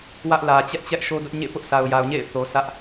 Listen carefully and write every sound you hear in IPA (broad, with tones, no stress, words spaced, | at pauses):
wä˦ʔlä˨ t͡ɕɛ˦ʔt͡ɕɛ˦ʔ ʃo˦dʊ˦ʔ ɲḛ˦˨ pʊ˦ʔsʰa˨ʊ̯ja˨ʊ̯ɲḛ˦˨ɪ̯ θo˨ sʰä˦ʔ